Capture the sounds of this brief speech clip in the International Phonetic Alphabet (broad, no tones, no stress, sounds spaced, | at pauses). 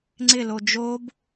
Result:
ŋ͡ǀ ɪ l o d͡ʒ o b